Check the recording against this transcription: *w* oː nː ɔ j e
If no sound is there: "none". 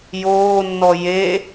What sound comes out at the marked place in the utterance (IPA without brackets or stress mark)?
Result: j